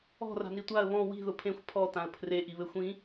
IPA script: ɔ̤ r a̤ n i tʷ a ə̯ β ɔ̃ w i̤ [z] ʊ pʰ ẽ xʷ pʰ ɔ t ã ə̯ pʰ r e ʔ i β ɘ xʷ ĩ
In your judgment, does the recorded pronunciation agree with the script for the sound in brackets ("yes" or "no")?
no